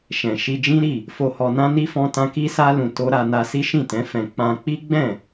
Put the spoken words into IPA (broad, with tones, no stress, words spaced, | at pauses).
ʃɛ̃˨ʃi˧d͡ʒĩ˦ ɾi˦˨ | fo˧hɔ˧nã˦ni˦ fɔ̃˦tã˦ ki˦sa˦ lũ˧to˦ ɾa˧ na˧si˦ʃĩ˦˨tɛ̃˨˦ fɛ̃˧ k͡pã˧k͡pi˦ɡ͡bɛ̃˦˨